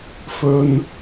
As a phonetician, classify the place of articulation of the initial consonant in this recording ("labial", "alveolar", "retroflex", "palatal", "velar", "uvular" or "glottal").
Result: labial